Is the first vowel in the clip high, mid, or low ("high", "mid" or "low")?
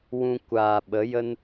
high